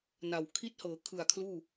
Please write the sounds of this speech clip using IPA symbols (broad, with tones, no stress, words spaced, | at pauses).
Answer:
na˨˩w kʰi˦˥t̚hɤː˩˦ kʰɯ˨˩a̯ kʰluː˥˩